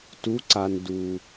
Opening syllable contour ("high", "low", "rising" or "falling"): rising